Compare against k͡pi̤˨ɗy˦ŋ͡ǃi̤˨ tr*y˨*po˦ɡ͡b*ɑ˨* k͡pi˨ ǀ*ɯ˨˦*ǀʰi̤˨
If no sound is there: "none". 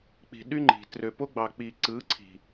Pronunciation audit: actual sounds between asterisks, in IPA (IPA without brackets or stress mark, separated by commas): ø˨, ɑ˨, ɯ˨˦